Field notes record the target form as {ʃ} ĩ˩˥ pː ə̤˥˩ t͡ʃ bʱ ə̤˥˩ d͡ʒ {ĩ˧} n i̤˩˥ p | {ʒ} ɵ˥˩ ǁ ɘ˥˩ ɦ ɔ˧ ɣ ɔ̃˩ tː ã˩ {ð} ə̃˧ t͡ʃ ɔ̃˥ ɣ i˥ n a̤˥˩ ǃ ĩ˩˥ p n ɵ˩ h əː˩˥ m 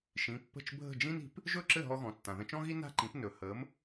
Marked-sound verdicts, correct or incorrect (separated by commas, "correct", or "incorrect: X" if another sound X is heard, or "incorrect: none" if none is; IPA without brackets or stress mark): correct, incorrect: ĩ˥, correct, correct